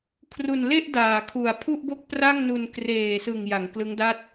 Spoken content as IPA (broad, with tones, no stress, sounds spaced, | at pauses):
kʰ r u˨˩ n l e˥˩ ʔ d aː˨˩ kʰ u˨˩ a̯ pʰ u˥˩ ʔ b o˥˩ k̚ p r a˥˩ ŋ n u˧ n k r eː˨˩ s ɯ˨˩ ŋ j a˩˦ ŋ k l ɯ˦˥ ŋ d a˥˩ t̚